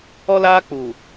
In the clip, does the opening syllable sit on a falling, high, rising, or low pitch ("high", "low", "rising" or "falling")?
high